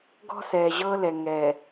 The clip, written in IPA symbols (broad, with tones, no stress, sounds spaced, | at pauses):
ɡ ɔ̤˦ s ɛː˨ ʑ ɤː˦ l ɛ˨ ŋ ɛː˨